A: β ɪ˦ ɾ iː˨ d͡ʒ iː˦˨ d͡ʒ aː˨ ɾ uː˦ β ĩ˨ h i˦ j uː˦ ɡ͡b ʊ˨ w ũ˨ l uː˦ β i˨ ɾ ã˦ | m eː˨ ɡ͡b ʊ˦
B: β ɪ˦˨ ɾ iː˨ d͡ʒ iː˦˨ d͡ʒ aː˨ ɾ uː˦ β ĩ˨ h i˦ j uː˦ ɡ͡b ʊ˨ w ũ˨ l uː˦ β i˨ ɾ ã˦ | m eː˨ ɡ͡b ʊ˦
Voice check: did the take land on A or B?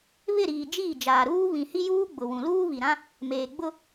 B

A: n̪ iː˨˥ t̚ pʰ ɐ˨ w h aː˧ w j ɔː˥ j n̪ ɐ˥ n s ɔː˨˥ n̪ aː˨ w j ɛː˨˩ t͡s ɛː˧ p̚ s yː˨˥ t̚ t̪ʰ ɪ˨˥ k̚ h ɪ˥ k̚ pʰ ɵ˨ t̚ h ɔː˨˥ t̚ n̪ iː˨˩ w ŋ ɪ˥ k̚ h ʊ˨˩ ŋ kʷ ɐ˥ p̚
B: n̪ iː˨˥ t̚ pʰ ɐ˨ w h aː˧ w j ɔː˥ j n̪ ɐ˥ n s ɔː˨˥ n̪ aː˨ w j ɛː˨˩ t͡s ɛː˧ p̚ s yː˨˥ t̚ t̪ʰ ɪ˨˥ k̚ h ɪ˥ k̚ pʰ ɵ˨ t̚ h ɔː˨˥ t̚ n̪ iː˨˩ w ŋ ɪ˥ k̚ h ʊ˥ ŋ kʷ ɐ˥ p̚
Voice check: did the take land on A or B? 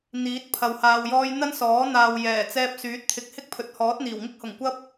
A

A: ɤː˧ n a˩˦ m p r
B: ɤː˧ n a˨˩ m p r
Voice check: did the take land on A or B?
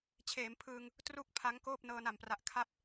B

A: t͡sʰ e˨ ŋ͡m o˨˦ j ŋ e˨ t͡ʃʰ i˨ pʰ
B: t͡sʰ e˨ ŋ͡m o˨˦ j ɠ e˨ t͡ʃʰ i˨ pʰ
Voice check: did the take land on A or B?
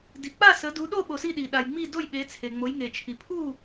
A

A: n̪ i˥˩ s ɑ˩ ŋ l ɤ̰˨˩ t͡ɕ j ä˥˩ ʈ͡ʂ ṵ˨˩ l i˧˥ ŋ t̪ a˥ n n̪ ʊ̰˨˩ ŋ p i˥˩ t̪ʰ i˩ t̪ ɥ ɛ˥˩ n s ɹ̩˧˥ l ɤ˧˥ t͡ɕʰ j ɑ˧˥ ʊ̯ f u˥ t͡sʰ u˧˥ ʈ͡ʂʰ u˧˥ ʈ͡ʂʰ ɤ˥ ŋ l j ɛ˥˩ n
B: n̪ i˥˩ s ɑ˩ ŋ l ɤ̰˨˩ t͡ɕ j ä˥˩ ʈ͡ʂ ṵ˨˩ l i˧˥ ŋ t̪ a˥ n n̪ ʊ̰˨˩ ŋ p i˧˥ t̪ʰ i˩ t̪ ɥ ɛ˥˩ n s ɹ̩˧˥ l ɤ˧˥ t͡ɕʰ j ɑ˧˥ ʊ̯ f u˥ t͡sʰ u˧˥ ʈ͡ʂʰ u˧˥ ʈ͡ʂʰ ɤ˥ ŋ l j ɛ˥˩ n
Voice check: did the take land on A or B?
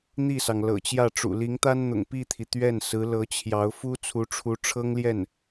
A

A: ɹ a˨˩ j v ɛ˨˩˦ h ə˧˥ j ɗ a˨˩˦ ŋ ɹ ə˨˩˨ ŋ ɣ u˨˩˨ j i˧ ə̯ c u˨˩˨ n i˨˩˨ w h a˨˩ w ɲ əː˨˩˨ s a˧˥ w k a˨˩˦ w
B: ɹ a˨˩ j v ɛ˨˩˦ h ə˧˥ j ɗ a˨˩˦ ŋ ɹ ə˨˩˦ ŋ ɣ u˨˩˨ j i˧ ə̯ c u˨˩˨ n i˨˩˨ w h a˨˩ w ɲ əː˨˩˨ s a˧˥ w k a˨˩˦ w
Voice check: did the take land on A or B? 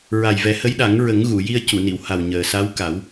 B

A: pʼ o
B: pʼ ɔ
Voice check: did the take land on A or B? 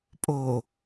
A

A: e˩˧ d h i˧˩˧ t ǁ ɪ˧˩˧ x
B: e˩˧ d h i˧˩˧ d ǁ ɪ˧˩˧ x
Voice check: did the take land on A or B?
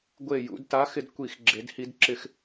B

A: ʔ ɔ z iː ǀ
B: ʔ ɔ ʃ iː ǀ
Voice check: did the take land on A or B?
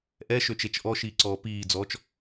B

